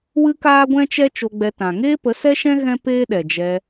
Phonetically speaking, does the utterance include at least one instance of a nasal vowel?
yes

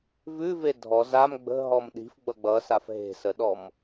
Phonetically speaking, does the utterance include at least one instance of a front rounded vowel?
no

